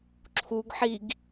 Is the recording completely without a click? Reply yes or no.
no